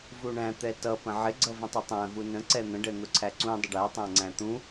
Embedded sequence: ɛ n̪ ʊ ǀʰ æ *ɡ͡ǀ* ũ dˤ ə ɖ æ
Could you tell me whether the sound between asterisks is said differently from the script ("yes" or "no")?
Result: yes